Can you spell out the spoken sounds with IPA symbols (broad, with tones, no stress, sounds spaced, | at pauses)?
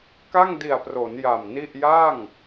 k a˥˩ ŋ d i˨˩ a̯ p r o˩˦ n j a˨˩ m n i˥˩ ʔ j a˥˩ ŋ